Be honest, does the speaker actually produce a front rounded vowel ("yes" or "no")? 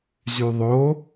yes